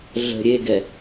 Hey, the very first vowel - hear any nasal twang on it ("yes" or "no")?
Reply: no